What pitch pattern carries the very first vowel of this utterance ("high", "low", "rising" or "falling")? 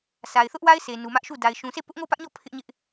low